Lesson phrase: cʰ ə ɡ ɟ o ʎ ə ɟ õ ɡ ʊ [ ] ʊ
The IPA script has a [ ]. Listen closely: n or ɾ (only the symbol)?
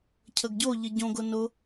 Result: n